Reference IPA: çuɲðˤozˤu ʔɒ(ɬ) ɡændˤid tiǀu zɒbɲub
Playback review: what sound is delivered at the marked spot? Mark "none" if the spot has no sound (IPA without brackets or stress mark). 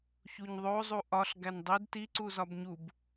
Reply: ɬ